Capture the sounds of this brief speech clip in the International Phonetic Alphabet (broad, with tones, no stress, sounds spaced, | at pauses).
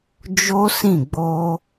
d͡ʒ o˦ s ĩ˦˨ ɡ͡b o˧